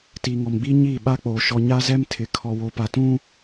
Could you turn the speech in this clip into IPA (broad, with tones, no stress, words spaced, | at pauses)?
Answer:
tiː˨ŋɔ˨mɡ͡biː˦ ɲiː˦˨ɓa˦k͡poː˨ ʃɔ˨ɲa˦zɛ˦m tʰɪ˨ kʰɔ˨wo˨pa˨ tũ˦